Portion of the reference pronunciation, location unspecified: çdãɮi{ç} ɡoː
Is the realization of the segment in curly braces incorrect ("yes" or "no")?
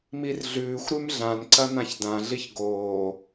no